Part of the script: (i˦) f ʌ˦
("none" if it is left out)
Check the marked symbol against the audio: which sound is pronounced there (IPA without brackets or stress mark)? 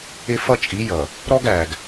ɪ˦